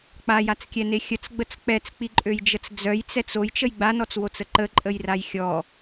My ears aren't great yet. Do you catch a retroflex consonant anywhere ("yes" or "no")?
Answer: no